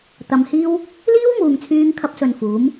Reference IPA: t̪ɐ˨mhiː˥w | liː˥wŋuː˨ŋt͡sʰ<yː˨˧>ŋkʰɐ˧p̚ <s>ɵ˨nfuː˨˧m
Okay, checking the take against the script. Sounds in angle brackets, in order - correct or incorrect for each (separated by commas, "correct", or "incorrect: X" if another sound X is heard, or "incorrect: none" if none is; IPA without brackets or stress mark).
incorrect: yː˧, correct